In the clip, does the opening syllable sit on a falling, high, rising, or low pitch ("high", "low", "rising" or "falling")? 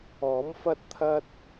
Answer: rising